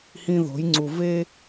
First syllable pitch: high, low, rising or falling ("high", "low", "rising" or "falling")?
high